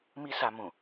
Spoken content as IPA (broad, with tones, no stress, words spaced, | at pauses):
mi˦sa˧mũ˨